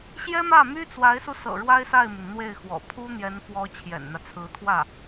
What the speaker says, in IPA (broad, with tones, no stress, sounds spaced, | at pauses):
ɕ j ɛ˥ m ä˥˩ m y˥ t͡s w a˧˥ ɪ̯ s u˧ s ɤ̰˨˩ ɻ w a˥ ɪ̯ s a˥˩ ɪ̯ m y˩ n n̪ w e˥˩ ɪ̯ x w ɔ̰˨˩ pʰ u˥ n̪ j ɛ˧˥ n f w ɔ˧˥ t͡ɕʰ j ɛ̰˨˩ n n̪ ä˦ t͡sʰ ɹ̩˧˥ t̪ʰ w ä˥˩